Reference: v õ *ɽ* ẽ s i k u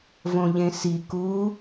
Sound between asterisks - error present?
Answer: yes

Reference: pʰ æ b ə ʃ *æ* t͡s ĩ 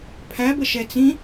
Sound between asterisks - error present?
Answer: yes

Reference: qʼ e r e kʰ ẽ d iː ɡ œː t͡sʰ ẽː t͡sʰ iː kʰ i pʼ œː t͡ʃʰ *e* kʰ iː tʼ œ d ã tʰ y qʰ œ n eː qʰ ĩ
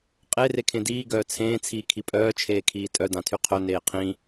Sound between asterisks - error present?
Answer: yes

